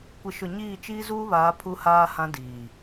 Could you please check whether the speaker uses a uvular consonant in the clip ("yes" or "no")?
no